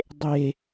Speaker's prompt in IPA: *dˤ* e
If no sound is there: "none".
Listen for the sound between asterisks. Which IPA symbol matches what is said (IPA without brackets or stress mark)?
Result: dˤ